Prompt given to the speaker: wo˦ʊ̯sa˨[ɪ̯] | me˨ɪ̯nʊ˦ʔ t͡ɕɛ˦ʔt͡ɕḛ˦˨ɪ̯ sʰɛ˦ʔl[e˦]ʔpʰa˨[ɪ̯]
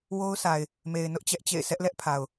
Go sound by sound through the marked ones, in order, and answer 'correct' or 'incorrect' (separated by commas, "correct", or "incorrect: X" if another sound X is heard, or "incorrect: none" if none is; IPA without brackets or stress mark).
correct, incorrect: ɛ˦, incorrect: ʊ̯